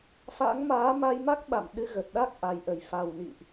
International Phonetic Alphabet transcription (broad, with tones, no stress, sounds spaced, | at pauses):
f a̰˧˥ ŋ m aː˨˦ m a˧ j m a˦˥ k̚ ɓ a̰˧˨ m ɗ ɨ˧ ɣ ə˨˩ t̚ ɗ a˦˥ k̚ ʔ a˨˩ j ʔ ə˨˩ j f a˨˩ w n ḭ˧˨ ʔ